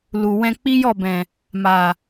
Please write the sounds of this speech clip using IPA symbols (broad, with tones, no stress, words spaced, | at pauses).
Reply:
lu˨ wɛ̃˧k͡pi˦jɔ˦˨bɛ̃˨ | ma˨